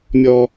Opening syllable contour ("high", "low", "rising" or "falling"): high